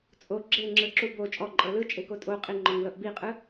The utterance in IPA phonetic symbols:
t͡sʼ o ɡ͡ǁ e ŋ͡ǁ ɯ ǁ u b o t͡ʃʼ ɔ ǃʼ ɤ l ɯ t͡ʃʼ e k o tʼ o qʼ i ŋ͡ǃ ɔ ŋ l ɤ ʔ b i qʼ ɯ

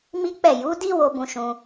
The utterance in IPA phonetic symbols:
m i˦ k͡p ɛ˦˨ j u˨˦ d i˦ w o˧ b ũ˧ ʃ ũ˧

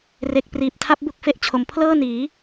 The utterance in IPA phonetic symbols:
r e˦˥ k̚ p r iː˨˩ p̚ tʰ a˦˥ p̚ b u˥˩ k̚ f e˦˥ ʔ t͡ɕʰ o˩˦ m pʰ l ɤː˥˩ n iː˩˦

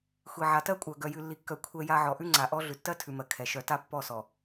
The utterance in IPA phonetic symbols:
xʷ i˨ ʕ a˨ t ɜ˦ kʷʼ œ˨ ɡ œ˨ j ʉ˨ lː i˨ kː œ˨ kʷʰ ɛ˦ j a˦ ʕ ɔ˨ ʔ ʉ˦ ŋ͡ǀ a˨ ʔ ɔ˦ ɮ ʉ˨ tː ɜ˦ tʰ ʉ˨ m ɜ˨ kʰ ɛ˨ ʃ œ˨ t a˦ pː ɔ˦˨ s ɔ˨

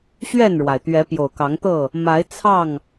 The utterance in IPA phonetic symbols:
ɕ ɥ ɛ˥˨ n ɻ w a˩ ɪ̯ t̪ ɥ ɛ˨˦ p j o˨˩ ʊ̯ k ɑ˨˦ ŋ t̪ ɤ˥˨ | m a˨˦ ɪ̯ t͡sʰ ɑ˥˨ ŋ

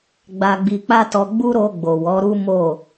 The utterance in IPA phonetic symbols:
ɡ͡b a˧ ɡ͡b i˧ k͡p a˦ t ɔ˧ ɡ͡b u˦ ɾ o˧ ɡ͡b o˨ w ɔ˨˦ ɾ u˦ m o˦˨

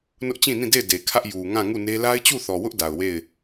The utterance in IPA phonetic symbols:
n ʊ˦ ʔ t͡ɕ ĩ˦˨ n ĩ˦˨ d e˦˨ ɪ̯ d e˨ kʰ ä˦ ʔ j u˨ ŋ ã˦˨ ŋ u˦˨ n e˦ l a˦ ɪ̯ t͡ɕ u˦˨ θ ɔ˨ w ʊ˦ ʔ d a˨ ʊ̯ w e˦˨ ɪ̯

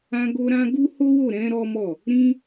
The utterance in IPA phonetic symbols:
ã˧ ɡ o˧ ɾ ã˦ ɡ u˦ h o˦ w o˦˨ ɾ ɛ̃˨˦ ɾ ɔ˦ m ɔ˦˨ | ɾ ĩ˦

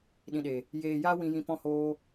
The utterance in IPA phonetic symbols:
ɗ ĩ˨ ɗ e˨ | j eː˨ j aː˧ w ĩ˨ j ĩ˨ p ɔ̃˧ h oː˧

